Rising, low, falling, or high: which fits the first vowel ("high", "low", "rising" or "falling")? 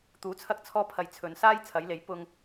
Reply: rising